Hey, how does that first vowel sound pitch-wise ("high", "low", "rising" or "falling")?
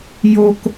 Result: high